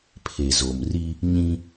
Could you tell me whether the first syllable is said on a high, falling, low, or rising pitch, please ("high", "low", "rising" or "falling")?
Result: low